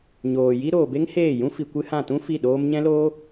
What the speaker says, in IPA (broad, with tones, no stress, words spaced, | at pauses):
ɲoː˨ji˦ ɾoː˨be˦ŋheː˦˨jũ˦ fi˧kʷɨ˦ hã˦˨ tũ˦ fi˦˨ɗoː˦m ɲɛ̃˦loː˦